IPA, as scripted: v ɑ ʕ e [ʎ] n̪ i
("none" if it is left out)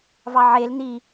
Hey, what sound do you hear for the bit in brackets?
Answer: l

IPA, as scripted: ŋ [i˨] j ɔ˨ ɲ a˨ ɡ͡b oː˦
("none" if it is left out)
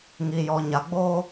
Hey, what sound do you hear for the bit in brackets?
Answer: i˨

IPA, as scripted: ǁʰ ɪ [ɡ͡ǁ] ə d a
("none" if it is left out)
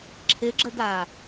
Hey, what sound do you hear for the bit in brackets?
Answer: ɡ͡ǁ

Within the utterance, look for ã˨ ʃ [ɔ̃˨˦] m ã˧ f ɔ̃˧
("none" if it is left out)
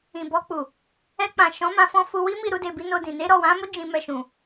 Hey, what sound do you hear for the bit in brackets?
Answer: ɔ̃˨˦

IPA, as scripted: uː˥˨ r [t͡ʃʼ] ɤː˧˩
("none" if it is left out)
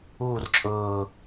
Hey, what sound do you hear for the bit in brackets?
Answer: t͡ʃʼ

